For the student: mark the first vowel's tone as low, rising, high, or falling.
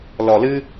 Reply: low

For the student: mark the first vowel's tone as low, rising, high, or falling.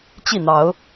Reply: falling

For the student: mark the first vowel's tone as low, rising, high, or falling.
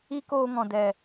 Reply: high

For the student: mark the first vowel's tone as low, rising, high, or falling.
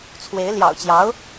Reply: rising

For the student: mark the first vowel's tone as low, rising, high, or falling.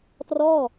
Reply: falling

